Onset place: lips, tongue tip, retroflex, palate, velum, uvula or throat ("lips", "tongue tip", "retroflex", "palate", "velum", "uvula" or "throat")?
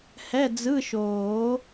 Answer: throat